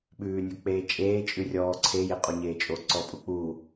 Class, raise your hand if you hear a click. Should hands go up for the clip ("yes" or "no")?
yes